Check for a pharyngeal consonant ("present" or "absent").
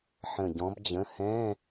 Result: present